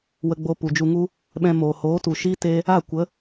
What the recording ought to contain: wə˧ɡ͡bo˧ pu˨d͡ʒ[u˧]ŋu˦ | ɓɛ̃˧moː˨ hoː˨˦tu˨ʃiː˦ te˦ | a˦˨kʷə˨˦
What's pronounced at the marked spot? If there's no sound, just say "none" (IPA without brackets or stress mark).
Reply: u˧